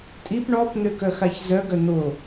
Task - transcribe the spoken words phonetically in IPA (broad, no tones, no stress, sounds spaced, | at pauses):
tʼ i p ɳ ɔ p n̪ ø k œ x a ç z œ ɡ œ n̪ o